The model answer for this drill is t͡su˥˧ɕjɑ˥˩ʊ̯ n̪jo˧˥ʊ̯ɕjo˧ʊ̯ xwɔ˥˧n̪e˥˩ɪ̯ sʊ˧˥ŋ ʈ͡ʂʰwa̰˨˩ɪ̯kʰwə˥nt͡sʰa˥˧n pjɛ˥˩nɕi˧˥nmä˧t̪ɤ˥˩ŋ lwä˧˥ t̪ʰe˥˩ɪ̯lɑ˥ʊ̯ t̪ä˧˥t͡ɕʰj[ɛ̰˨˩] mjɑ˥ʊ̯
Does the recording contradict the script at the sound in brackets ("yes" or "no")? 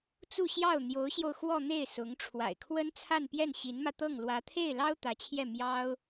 yes